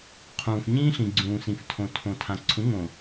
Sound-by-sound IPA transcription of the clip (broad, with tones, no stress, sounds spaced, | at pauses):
qʰ ũː˨ f ɲ ĩː˦ ɬ ĩ˨ ɡ͡ǀ ũː˨ s ĩ˨ f tʰ õ˨ tʰ õ˨ tʰ ã˨ ǀʰ ũ˨˦ ŋ õ˨